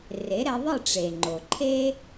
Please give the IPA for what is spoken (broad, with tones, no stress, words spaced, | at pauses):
re˩˥ɾɛ˧ðˤɯ˥˩ʈ͡ʂe˩ ŋ͡ǃo˩ǃʰe˥